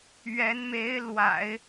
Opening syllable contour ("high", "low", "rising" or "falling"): rising